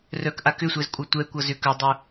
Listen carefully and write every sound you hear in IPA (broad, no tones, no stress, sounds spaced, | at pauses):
r œ k ʔ a k ʏ sʷ ɛ z kʷʼ ʌ tʷ ɛ kʷ ʌ z ʏ k œ dˤ u